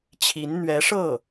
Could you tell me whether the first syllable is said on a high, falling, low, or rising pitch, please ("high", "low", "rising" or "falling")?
rising